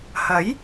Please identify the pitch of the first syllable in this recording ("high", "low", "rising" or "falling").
rising